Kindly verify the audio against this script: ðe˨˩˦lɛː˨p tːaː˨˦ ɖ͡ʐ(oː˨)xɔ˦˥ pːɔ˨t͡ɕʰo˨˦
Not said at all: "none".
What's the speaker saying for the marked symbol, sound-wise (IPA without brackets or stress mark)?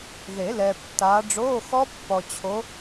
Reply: oː˧˥˧